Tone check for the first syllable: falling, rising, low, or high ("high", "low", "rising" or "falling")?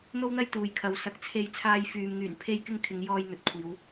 high